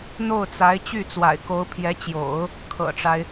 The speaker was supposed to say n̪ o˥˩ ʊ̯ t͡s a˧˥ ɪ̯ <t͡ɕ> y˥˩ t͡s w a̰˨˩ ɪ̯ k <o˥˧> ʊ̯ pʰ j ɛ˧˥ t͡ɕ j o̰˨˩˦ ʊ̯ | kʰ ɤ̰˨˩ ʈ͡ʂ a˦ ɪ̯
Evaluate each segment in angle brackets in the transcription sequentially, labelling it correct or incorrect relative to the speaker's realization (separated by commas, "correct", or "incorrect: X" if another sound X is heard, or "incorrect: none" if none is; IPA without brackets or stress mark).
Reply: correct, incorrect: o˧˥